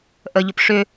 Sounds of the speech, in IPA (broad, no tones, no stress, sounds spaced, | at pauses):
ʔ ə ʎ ʊ p ʂ ʏ